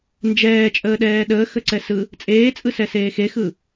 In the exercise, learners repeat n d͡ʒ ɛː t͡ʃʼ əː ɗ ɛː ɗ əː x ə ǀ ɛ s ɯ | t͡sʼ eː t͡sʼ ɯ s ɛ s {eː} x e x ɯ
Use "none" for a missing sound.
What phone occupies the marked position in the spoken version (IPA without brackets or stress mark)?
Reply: eː